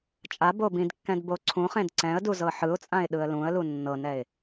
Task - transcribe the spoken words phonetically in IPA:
t͡ʃʼ a b o b ĩ d kː ɛ̃ d b o ǀʰ ũ χ ẽ d ǀ ɛ̃ ə̯ d u z ɤ ħ ɯ ʊ̯ t͡sʼ ã ɪ̯ ɗ ɯ ə̯ l ũ ə̯ l u nː ɤ n ɛ ɪ̯

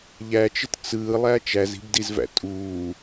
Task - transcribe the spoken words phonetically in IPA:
ʎ æ t͡ʃ ɘ t t͡s ɯː lˠ æ t͡ʃ æ z i̤ b d i z v æ̰ tʼ uː

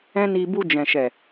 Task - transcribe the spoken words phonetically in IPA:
ɛ̃˦ n i˧ b u˧ d͡ʒ ɛ̃˨ ʃ ɛ˨

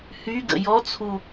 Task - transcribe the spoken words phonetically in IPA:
h y ɡ ə̰ j ɔ t͡sʰ u

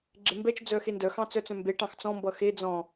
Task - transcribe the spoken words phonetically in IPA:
ɡ͡ǁ e m b ɛ t͡ʃ d͡z œ x e n d œ x ɑ̃ t͡s œ t͡s œ̃ m b e ʈ ɑ̃ x t͡s ɔ̃ m b ʌ x e d͡z ɔ̃

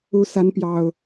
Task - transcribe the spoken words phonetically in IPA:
u˨˦ s a˨˦ n p j ɑ˨˩ ʊ̯

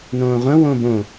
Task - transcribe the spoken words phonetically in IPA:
n õː ʁʷ ə̃ w õ b õ

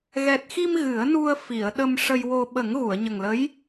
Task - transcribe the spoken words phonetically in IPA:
ɣ ɛ˨˩ t̚ x i˧ m ɣ ɨ˨˩˦ ə̯ n u˧ ə̯ f i˨˩˨ ə̯ ɗ ə˧ m ʂ ə˧ j w o˧ ɓ ə˨˩˦ ŋ ɣ u˨˩˨ ə̯ ɲ ə˨˩ ŋ l ə˧˥ j

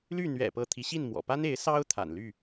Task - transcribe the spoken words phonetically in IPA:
l y˥˨ n̪ ɥ ɛ̰˨˩ p ɤ˨˦ t̪ʰ i˨˦ ɕ i˥˨ n m w ɔ̰˨˩ p a˦ n e˨˦ ɪ̯ s ɑ˦ ʊ̯ t̪ʰ a̰˨˩ n l y˥˨

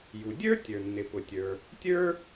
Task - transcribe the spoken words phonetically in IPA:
j u˩ dʲ ə˞˥ tʲ ə˞˩ nː ɪ˩ p ʊ˩ tʲ ə˞˩ | tʲ ə˞˥

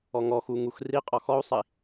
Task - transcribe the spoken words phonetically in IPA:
ɔ ŋ ɔ x u ŋ u x r i qʼ ɔ x ɔ u̯ sˤ i

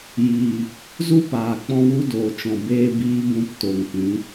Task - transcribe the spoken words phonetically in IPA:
j iː˨ | z u˦ p aː˨ k͡p ɔ̃˧ w u˧ d oː˨ t͡ʃ ɔ̃˨ b eː˦ b iː˦ b ũ˧ p t o˨ ŋ p ĩ˨˦

